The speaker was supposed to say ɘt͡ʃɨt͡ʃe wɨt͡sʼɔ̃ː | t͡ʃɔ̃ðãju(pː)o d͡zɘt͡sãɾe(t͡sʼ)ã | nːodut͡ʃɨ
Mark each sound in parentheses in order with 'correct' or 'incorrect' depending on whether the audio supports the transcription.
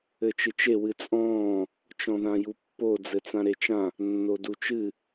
correct, incorrect: t͡ʃ

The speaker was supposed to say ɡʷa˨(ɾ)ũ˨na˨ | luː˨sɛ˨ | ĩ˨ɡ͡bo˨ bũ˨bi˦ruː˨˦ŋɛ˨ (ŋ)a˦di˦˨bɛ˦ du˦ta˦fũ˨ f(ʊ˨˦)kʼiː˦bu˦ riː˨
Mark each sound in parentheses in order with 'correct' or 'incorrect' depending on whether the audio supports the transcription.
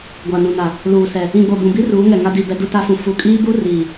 incorrect: n, correct, incorrect: u˨˦

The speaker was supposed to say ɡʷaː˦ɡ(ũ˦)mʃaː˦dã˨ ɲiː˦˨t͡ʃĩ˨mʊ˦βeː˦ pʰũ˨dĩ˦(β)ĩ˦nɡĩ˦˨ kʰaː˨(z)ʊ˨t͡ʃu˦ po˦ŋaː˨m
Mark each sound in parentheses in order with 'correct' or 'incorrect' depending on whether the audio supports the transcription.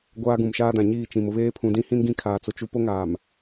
incorrect: ũ˨, incorrect: h, incorrect: t͡s

